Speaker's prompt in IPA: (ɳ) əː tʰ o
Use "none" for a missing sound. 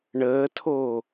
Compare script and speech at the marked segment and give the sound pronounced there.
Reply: ɳ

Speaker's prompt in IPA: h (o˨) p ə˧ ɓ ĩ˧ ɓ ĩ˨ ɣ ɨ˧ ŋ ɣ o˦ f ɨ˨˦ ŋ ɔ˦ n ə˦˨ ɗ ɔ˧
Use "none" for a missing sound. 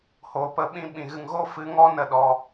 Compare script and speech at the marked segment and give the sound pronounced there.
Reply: o˨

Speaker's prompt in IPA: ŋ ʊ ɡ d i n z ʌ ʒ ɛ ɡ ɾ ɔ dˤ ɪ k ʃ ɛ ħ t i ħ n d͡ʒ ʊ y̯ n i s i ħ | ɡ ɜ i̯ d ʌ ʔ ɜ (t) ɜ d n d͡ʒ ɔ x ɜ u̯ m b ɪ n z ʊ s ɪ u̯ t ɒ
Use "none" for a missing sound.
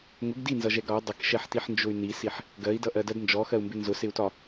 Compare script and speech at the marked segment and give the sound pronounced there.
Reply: d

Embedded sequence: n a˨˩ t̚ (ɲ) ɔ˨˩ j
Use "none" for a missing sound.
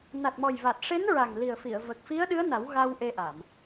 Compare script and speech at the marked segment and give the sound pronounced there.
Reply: m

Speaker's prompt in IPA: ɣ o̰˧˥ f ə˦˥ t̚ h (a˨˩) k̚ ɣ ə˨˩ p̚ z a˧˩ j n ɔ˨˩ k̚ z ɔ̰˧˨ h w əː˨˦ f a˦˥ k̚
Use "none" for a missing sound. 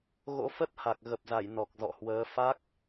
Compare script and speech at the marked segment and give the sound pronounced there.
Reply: a˨˩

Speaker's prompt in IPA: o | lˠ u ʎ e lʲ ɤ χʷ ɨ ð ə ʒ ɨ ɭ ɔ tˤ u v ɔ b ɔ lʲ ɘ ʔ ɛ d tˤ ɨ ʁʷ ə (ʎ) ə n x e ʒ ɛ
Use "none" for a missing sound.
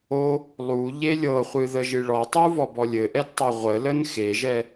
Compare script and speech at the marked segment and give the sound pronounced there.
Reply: l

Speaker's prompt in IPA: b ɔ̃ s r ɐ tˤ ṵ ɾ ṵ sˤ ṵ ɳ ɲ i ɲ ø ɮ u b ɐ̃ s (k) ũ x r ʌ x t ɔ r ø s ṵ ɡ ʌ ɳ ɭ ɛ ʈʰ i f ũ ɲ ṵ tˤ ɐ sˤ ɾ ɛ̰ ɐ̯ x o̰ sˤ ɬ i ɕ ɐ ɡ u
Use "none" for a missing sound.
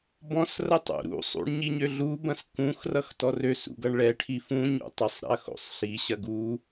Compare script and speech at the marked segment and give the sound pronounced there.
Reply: k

